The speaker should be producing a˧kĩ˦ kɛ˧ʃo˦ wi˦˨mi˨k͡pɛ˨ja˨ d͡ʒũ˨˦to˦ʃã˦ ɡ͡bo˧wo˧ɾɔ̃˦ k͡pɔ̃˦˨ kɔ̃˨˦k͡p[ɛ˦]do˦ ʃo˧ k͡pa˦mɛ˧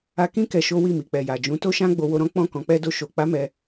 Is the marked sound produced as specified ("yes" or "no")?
yes